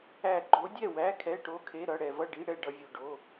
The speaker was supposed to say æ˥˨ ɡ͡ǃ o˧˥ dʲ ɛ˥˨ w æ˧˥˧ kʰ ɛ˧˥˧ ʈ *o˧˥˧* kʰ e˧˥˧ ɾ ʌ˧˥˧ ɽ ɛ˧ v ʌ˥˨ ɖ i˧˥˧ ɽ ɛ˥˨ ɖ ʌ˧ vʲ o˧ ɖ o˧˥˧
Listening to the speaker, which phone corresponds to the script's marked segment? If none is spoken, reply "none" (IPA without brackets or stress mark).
o˧˥˧